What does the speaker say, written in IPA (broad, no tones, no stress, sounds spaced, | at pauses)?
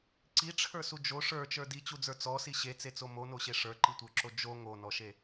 ǀ i ʈ͡ʂʰ ə˞ s u d͡ʒ o ʂ ə˞ t͡ʃ ə˞ d i t͡ɕ u d͡z ə˞ t͡s ɔ s i ɕ e t͡s e t͡s o m o n o ɕ e ʂ ə˞ ǃ i tʷ ə˞ ǁ o d͡ʒ o ŋ o n ɔ ʃ e